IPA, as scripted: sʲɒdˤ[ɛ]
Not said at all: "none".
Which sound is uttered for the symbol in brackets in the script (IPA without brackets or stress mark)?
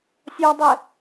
ɛ